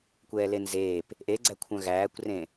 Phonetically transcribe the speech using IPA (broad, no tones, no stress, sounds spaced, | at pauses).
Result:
kʷ ɛː l e n z eː p | ʔ e ɡ͡ǀ æ kʷʰ œ̃ ɣ æː kʷ r ẽ